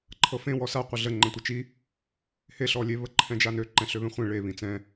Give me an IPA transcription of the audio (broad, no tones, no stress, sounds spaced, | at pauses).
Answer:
ǃʰ ɤ f ẽ w ɔ s a qʷ ə ɮ ə ŋ͡ǃ ɛ̃ tʷ ə t͡ʃ i | h e ɬ ɔ lʲ e β ə ǃʰ ɛ̃ d͡ʒ a n ø ǃ ɛ̃ ɬ ø β ẽ χʷ ẽ ɭ e β ĩ t͡s ɛ̃